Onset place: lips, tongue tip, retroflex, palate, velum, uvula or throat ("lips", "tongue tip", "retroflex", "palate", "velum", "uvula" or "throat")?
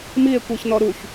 lips